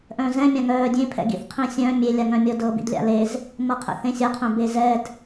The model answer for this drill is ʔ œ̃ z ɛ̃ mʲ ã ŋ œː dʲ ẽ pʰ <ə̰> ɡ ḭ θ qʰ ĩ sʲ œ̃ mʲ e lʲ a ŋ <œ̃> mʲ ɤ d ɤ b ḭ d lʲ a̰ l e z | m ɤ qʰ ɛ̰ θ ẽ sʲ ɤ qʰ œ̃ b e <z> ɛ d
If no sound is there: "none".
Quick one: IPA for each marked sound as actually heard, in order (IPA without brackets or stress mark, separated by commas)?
ɛ̰, œ̃, z